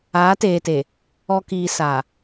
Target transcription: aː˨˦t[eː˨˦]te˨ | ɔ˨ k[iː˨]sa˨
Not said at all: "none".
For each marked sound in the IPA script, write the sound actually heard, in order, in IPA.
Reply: eː˨, iː˨

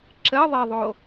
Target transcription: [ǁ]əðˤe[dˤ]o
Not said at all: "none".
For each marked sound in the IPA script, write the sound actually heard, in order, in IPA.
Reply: ǁ, ðˤ

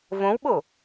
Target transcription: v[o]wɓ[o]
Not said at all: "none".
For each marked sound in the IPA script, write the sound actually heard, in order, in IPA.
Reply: õ, o

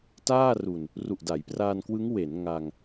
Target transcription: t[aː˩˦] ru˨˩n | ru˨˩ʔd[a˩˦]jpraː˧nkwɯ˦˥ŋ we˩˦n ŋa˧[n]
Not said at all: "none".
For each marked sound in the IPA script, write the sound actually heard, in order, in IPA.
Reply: aː˥˩, a˩˦, ŋ

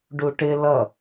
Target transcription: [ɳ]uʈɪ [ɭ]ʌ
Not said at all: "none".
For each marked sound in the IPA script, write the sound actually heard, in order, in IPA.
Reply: ɖ, l

